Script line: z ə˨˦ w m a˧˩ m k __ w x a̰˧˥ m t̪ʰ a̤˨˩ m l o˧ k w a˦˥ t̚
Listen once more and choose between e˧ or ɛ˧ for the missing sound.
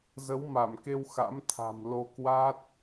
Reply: e˧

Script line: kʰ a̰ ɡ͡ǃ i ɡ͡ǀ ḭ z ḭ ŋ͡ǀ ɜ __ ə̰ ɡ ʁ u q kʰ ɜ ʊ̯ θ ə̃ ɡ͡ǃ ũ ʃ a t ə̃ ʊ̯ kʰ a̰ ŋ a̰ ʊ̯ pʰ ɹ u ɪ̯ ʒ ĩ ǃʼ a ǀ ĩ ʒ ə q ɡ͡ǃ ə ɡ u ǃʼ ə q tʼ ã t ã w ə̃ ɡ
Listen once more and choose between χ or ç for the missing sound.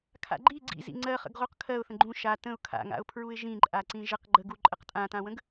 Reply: χ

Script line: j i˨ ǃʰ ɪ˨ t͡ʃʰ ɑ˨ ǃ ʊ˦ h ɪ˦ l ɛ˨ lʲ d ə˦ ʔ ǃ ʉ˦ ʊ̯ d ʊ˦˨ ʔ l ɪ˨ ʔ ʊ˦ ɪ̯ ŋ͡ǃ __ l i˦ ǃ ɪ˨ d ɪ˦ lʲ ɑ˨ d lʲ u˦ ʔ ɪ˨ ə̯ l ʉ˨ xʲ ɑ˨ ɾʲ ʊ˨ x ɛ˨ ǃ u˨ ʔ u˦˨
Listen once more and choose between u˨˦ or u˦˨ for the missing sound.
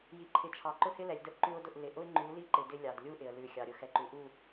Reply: u˨˦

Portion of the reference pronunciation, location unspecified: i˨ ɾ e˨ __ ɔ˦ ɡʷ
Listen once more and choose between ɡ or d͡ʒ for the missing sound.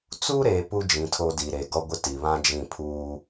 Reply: ɡ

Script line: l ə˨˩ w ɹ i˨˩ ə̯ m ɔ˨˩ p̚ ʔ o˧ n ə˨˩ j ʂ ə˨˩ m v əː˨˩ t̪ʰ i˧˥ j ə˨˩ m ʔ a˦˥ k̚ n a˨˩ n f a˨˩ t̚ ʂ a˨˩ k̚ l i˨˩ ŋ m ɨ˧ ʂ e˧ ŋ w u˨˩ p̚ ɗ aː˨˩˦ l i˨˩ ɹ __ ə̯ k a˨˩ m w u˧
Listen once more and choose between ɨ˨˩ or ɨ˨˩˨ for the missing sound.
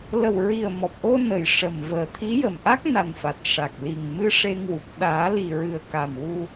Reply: ɨ˨˩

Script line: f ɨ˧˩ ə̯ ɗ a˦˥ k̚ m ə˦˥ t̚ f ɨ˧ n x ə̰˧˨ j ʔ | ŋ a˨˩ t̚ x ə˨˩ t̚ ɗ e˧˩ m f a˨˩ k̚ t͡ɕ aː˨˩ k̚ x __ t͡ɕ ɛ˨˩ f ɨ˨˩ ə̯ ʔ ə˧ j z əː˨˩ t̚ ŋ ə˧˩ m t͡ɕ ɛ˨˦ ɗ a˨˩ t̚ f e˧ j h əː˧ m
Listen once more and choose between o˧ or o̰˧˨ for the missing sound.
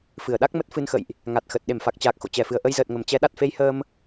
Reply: o̰˧˨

